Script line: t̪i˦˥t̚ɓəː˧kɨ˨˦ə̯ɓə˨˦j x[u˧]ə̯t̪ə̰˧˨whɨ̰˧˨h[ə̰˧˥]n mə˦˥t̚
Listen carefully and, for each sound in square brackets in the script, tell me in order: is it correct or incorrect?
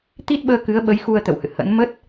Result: correct, correct

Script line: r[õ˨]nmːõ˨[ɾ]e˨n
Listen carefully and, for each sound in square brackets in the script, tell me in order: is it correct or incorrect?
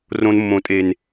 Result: correct, incorrect: tʼ

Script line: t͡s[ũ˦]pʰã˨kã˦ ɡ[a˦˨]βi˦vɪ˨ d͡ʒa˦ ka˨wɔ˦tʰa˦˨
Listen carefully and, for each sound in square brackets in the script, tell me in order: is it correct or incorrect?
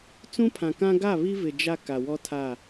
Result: correct, correct

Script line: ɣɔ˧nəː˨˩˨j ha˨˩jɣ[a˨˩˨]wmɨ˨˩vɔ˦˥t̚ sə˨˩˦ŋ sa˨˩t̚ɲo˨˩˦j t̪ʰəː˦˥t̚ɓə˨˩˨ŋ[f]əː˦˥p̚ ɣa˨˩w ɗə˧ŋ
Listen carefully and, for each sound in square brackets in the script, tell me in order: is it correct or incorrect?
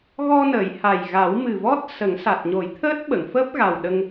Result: incorrect: a˨˩˦, correct

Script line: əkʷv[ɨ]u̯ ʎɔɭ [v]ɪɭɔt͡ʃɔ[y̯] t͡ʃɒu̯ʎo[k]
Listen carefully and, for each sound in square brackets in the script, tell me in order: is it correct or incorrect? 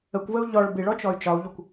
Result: incorrect: ə, incorrect: b, correct, incorrect: kʷ

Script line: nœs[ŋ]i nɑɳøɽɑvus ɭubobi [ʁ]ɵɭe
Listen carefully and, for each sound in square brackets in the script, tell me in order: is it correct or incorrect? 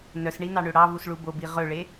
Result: incorrect: ɳ, correct

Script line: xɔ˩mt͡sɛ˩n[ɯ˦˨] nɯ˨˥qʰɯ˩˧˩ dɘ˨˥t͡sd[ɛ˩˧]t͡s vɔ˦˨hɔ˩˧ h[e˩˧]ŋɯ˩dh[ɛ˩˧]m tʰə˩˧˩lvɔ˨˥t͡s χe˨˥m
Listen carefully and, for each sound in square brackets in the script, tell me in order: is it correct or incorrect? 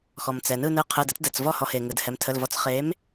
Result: correct, incorrect: ɛ˩˧˩, incorrect: e˩, correct

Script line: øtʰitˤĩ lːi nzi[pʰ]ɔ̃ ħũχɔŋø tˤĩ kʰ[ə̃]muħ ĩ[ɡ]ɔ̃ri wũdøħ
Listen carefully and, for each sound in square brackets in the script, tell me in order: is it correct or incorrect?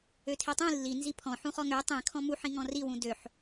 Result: correct, incorrect: ɔ̃, incorrect: ŋ

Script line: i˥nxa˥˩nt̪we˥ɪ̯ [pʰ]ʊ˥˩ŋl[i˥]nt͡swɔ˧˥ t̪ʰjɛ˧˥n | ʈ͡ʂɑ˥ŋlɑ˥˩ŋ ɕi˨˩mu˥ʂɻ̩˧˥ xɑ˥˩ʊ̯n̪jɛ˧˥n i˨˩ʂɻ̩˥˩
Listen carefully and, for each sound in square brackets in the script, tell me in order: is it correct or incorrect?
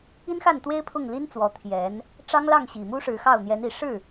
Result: correct, correct

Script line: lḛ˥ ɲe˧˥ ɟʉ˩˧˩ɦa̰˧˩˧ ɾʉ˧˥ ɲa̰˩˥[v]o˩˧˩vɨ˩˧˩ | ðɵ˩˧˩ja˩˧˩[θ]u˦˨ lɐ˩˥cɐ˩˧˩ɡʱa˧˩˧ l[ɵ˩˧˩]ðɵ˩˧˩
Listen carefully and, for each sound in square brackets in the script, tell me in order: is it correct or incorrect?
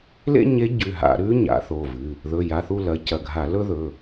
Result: incorrect: θ, correct, incorrect: ɵ˥

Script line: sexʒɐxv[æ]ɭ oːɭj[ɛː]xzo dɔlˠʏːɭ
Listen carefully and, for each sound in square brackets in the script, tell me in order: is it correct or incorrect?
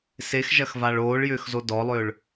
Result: incorrect: a, incorrect: ʏː

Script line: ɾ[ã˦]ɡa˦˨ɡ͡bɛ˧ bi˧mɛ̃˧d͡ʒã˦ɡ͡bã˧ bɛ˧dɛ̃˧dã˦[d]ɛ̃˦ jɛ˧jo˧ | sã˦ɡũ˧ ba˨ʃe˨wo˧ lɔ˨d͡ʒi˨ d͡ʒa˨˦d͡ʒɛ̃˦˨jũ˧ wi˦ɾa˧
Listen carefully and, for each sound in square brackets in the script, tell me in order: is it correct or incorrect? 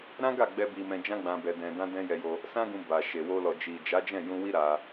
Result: correct, correct

